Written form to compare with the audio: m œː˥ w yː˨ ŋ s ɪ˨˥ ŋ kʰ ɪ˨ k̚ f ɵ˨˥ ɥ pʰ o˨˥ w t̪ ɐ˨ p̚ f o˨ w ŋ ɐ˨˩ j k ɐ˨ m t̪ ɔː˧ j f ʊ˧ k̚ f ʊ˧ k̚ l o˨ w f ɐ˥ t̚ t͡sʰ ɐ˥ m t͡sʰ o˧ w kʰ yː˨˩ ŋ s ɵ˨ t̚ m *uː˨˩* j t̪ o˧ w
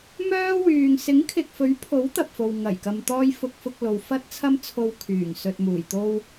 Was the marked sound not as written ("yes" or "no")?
no